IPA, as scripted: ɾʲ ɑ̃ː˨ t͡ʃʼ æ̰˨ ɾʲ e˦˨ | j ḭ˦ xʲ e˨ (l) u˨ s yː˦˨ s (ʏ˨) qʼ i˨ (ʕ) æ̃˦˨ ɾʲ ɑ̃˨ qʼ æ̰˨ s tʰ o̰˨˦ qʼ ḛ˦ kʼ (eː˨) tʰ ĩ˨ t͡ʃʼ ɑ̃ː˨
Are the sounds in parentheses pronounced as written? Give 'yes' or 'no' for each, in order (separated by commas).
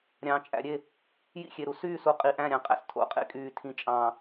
no, no, no, no